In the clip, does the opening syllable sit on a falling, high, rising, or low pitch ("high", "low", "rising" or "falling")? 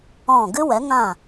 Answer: falling